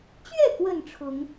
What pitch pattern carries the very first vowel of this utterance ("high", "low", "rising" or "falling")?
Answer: falling